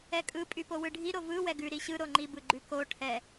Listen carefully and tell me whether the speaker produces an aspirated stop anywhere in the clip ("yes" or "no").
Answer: yes